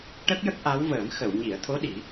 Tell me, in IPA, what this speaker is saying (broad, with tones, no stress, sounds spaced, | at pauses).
ʈ ə˦˥ k̚ j ə˦˥ k̚ ʔ a˧˥ w v əː˨˩˦ m x ə˨˩˨ w ɲ i˨˩˨ ə̯ t̪ʰ o˧˥ ɗ i˨˩˦